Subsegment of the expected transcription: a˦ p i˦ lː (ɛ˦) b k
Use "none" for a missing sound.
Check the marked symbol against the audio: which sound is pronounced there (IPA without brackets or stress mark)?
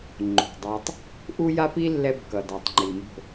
ɛ˦